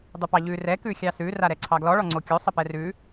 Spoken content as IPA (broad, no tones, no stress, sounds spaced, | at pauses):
dˤ ʉ p ɑ ʎ ʉ r ɛ k ʉ xʲ ɑ s ʉ r a ɾ ɛ ǀʰ ɑ ɡ l ɔ ɭ ɔ ŋ͡ǀ o kʲ o sˤ ə p ɛ r ʉ